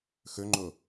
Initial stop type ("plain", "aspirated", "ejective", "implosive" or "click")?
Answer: click